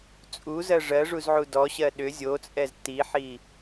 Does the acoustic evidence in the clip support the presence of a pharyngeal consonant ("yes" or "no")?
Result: yes